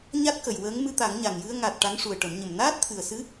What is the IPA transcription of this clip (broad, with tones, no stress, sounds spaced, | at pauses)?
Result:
ɲ a˦˥ t̚ k ə˨˩ j w əː˧˥ ŋ m ɨ˧ t̪ a˨˩˦ ŋ ɲ a˨˩ ŋ j ɨ˧ ə̯ ŋ a˨˩ t̚ ʈ a˧˥ ŋ ʂ u˨˩ ə̯ ʈ ə˨˩˦ m ɲ ə˨˩ m n aː˦˥ t̚ t̪ʰ ɨ˨˩ ə̯ s ɨ˧˥